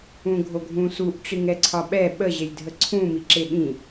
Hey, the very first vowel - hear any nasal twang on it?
yes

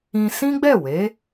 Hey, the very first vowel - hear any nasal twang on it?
yes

